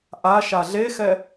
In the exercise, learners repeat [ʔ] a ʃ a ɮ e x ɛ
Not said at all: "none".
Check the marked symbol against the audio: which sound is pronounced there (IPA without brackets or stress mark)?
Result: ʔ